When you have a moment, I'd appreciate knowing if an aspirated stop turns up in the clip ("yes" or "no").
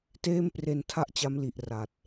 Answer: yes